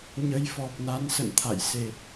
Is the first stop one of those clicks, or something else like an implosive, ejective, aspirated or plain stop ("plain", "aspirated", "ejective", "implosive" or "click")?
plain